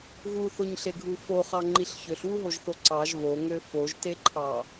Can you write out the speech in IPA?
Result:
ɣuθoɲɬeɡʱu foχɑŋ͡ǃiɬ çøɬwuɦoʒθo ǀɑʒ βoŋø foʒteǃʰɑ

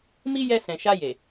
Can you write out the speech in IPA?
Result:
mi˧ jɛ˧sɛ̃˨ ʃa˧je˨

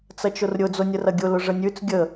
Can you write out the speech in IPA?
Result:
t͡sɐt͡ʃʊrɾʲʊ d͡zonʲərɐɡʲʊ lʊʐənʲʉt͡s ɡʲə

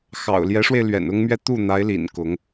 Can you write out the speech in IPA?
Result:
xɑ̰˨˩ʊ̯ljɛ˧˥ʂwe˧ɪ̯ lɥɛ̰˨˩nʊ˥ŋmɥɛ˥˧ t̪u˥˩n̪a˧˥ɪ̯lḭ˨˩n kʊ˧˥ŋ

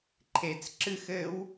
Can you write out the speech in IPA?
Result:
ǃʰet͡s ǁɨx ɘw

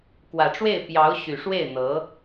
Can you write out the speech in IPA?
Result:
kwä˨˩ʈ͡ʂwe˥˩ɪ̯ pjɑ˧˥ʊ̯ ɕy˨˩ʂwe˥˩ɪ̯n̪ɤ˧˥

